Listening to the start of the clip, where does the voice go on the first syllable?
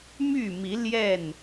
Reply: falling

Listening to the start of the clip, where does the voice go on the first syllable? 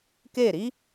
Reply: falling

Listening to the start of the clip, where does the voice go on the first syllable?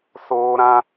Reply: high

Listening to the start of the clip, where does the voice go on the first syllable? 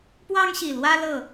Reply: high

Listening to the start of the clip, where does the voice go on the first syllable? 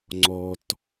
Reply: low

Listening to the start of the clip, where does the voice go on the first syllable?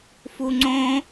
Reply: low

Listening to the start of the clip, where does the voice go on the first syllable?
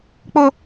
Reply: high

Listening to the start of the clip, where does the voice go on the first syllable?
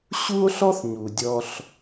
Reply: high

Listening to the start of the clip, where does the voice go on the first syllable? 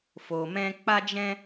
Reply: low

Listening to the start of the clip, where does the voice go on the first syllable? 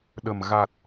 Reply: low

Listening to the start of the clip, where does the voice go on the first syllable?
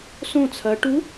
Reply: falling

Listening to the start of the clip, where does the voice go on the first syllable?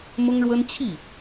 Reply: high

